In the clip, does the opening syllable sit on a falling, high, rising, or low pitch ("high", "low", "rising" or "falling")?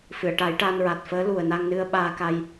low